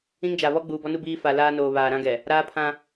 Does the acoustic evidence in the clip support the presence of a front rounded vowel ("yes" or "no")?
no